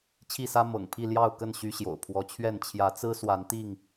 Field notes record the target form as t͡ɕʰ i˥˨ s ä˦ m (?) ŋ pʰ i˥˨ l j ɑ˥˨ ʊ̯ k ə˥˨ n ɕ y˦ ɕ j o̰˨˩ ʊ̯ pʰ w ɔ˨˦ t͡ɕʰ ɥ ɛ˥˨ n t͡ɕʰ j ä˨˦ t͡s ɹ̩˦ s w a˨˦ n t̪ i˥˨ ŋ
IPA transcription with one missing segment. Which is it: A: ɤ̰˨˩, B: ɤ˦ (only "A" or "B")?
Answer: A